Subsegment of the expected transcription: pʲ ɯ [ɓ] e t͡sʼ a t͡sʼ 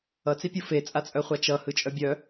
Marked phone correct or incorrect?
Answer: incorrect: f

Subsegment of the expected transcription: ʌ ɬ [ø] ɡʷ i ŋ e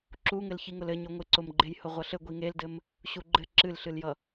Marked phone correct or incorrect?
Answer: incorrect: ɘ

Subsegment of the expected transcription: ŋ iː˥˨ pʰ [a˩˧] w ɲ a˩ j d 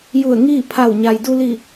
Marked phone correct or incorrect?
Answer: incorrect: a˧˩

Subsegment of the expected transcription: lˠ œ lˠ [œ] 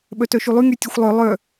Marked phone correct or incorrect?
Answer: correct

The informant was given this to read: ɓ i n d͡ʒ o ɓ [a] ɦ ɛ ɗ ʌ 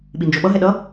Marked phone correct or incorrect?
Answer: incorrect: ʌ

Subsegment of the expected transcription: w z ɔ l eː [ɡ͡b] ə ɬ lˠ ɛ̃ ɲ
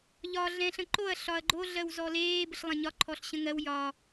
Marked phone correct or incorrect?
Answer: incorrect: b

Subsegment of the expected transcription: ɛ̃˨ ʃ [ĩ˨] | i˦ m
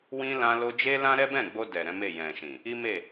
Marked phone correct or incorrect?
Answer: correct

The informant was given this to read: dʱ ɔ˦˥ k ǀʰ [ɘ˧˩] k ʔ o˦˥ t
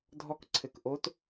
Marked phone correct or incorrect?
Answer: correct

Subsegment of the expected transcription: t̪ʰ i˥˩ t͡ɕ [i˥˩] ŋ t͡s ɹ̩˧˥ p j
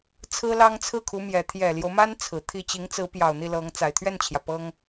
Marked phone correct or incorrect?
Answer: incorrect: i˧˥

